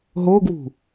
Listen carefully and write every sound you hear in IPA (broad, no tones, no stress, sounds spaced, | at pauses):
ɦ o ɡ w ṳ